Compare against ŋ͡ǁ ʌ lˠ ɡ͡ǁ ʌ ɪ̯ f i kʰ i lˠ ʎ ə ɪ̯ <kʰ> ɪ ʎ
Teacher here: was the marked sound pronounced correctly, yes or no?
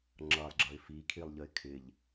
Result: yes